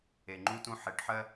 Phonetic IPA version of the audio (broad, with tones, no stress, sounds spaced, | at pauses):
e˨ ŋ͡ǃ u˦ t ũ˦ ħ e˨˦ ʈ ħ ɜ˦